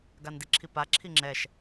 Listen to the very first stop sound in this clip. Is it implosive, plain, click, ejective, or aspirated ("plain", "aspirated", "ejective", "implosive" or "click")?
plain